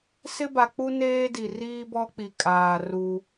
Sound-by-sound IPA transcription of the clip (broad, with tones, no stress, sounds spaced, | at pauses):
s ɪ˦ b a˨ k͡p u˦ n eː˦ d i˨ r iː˦ b ɔ˦ k͡p i˨ kʼ aː˨ r u˦